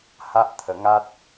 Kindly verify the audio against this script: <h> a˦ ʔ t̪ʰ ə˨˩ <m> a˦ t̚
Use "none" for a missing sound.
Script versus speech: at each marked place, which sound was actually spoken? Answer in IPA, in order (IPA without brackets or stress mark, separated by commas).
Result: h, ŋ